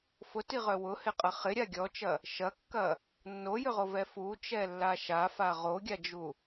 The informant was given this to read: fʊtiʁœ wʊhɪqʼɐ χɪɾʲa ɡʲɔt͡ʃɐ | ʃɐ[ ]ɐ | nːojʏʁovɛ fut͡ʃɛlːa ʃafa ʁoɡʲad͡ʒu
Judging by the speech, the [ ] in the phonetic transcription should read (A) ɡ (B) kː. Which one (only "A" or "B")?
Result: B